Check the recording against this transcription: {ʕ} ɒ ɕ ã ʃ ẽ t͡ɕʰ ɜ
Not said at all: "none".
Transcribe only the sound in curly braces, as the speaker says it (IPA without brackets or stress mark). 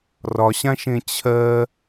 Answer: r